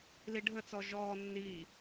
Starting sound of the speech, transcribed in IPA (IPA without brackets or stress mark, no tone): l